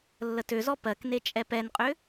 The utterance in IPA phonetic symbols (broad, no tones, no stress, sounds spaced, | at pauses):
lː ə t ø z ɔ p ɜ k n e t͡ʃʼ ɛ p ɛ n qʼ ʏ